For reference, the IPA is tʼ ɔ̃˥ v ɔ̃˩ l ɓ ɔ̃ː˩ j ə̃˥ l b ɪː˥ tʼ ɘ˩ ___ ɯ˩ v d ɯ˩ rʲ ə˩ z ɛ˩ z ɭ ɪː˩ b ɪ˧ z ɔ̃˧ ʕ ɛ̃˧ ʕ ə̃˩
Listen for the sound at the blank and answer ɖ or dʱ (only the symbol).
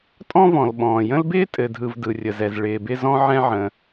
dʱ